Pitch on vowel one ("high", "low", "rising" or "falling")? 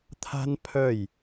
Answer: high